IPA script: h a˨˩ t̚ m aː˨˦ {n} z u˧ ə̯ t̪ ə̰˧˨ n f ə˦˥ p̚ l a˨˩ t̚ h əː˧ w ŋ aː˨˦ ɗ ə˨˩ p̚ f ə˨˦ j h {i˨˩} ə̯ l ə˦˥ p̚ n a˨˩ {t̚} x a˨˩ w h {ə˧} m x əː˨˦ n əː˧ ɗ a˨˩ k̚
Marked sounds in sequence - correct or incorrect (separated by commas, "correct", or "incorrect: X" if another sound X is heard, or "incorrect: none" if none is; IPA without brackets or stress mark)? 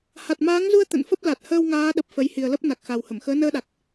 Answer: incorrect: ŋ, correct, incorrect: k̚, incorrect: ə˧˩